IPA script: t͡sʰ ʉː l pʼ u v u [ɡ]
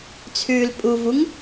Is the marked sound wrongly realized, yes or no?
yes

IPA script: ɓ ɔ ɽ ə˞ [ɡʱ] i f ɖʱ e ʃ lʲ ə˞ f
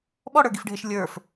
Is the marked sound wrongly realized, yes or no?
yes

